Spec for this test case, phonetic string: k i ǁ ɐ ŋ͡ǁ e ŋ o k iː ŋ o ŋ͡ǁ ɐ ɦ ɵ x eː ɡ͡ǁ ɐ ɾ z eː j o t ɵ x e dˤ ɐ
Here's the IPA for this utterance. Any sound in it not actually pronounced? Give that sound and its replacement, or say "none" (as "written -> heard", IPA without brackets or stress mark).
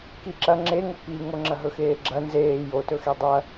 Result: ɾ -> n